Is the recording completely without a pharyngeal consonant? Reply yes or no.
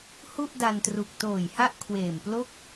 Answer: yes